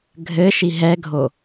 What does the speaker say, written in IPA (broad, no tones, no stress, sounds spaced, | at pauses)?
ɡʱ ɘ ʃ i ɦ ɛ ɡʱ o